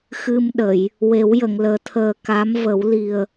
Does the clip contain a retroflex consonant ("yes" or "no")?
no